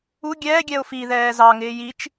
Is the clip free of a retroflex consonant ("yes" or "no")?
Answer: yes